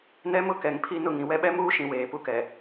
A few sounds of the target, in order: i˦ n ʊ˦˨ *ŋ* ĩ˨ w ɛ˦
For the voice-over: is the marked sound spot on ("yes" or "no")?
yes